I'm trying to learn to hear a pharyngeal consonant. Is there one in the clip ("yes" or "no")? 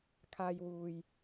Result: no